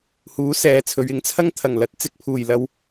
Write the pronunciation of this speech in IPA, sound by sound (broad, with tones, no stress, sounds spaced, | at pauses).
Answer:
h uː˨˥ s ɛː˨˧ t͡sʰ ɵ˨˧ ɥ ɪ˨˥ ŋ t͡sʰ ɐ˥ ŋ t̪ʰ ɐ˨˩ ŋ l ɐ˨˥ t̚ t͡s ɪ˧ k̚ pʰ uː˨˩ j l ɐ˧ w